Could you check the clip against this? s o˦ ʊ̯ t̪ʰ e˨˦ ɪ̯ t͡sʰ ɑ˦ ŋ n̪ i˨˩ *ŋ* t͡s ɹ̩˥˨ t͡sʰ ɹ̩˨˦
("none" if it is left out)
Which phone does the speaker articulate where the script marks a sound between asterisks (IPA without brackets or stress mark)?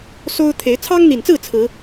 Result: n